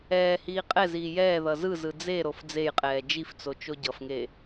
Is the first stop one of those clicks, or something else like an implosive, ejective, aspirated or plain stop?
ejective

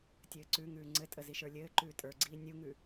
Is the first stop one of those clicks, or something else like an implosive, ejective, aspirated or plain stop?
plain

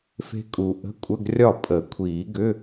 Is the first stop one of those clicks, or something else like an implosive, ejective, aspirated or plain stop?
ejective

